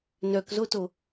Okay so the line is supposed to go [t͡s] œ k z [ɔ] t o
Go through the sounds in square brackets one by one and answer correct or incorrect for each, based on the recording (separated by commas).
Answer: incorrect, incorrect